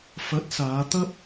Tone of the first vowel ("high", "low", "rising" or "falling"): rising